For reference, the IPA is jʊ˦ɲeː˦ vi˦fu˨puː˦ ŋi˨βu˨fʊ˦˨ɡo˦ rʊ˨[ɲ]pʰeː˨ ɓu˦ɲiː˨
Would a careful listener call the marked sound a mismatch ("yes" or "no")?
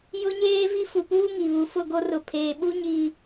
yes